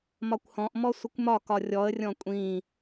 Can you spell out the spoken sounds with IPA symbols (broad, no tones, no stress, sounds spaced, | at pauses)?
m ɒ kʷ h ɔ̃ ʔ m ɔ sʷ ə kʷ m ɒ k ɒ rʲ ɔ ə̯ rʲ ɔ̃ kʷʼ ĩ